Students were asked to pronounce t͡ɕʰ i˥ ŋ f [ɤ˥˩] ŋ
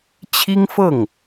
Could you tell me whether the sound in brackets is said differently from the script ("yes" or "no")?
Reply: no